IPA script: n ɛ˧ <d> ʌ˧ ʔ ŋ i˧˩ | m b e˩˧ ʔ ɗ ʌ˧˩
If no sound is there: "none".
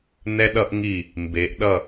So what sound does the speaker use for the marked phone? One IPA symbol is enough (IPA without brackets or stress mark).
ɗ